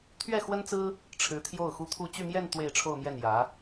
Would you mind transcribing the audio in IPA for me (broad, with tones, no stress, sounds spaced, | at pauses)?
t̪ʰ ɥ ɛ˥˩ x w ə˥ n t͡s ɹ̩˥ | ʈ͡ʂʰ ɻ̩˧˥ t̪ʰ j o˥˩ ʊ̯ x u˥ t̪ʰ u˥˧ t͡ɕ y˥˧ m j ɛ˥˧ n t̪ w e˥˧ ɪ̯ ʈ͡ʂʰ o˥˧ ʊ̯ m j ɛ˥˩ n j ä˧˥